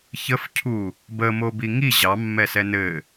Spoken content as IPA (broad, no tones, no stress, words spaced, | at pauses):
çəfcʰu | bəmobi ŋi ʑɑmːɛsɛ nɘ